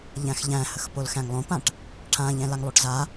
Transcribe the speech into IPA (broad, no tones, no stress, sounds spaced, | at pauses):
ʎ æ̃ x ʎ æ̃ h ə x p o l x æ̃ ŋ lˠ õ p ã ʈ | ʈʰ ã ʎ ɛ̃ l a ŋ lˠ o ʈ z a